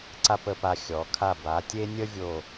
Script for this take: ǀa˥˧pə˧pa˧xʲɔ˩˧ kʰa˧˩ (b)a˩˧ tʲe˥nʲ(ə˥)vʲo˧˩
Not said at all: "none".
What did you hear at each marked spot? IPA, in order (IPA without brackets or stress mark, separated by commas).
b, ə˥